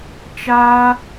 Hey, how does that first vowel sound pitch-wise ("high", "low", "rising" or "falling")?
high